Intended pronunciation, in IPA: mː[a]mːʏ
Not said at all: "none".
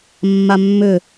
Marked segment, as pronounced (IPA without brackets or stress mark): a